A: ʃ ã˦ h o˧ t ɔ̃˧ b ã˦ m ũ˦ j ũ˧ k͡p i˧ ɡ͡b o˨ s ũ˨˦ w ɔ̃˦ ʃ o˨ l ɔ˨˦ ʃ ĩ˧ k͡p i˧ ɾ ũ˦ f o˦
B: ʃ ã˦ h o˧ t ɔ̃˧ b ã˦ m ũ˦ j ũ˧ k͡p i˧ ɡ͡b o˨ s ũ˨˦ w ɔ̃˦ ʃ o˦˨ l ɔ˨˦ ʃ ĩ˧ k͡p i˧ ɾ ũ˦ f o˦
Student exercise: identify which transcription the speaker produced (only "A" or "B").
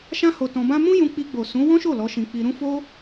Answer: B